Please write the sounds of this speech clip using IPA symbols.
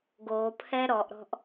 ɡ o pʰ ɛ ɾ ɔ ʔ ɾ ɔ̤ ʔ

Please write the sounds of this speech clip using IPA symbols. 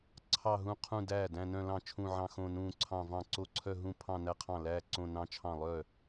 ǀʰ ɑ˥˧ ɦ ũ˥˧ qʰ ũ˥˧ d æː˥˩ d æ̃˥˧ n œ̃˥˧ l ɑ̃˥˩ t͡ʃʰ ũ˥˧ ʕ ɑ̃˥˧ x õ˥˧ n ũː˥˧ ǀʰ ɑ̃˥˧ v ɑ̃˥˩ ǀ o˥˧ ǀʰ œ˥˧ ɦ ũ˥˧ pʰ ɑ̃˥˧ n æ˥˧ qʰ ɑ̃˥˩ l æː˥˧ ǀ õ˥˧ n ɑ̃˥˧ t͡ʃʰ ɑ̃˥˩ lˠ œ˥˩

